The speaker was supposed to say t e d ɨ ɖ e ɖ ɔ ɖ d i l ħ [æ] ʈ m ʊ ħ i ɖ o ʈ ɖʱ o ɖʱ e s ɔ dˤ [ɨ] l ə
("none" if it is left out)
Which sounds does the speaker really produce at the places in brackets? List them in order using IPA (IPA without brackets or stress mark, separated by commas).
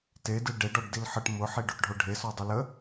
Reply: ə, ɨ